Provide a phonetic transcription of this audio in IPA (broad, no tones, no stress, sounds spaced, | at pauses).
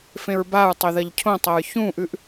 f ẽ ɹ b a ɹ tˤ ɵ ð ɐ ʎ cʰ õ tˤ ɐ ɹ ç ũ ʔ ʉ ʔ